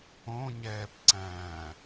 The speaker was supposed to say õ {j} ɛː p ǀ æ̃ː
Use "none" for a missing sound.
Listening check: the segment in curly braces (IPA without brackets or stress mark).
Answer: ɲ